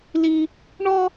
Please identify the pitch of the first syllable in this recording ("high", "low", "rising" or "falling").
high